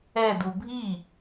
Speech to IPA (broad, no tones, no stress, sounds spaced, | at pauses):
ɛ d u bʱ i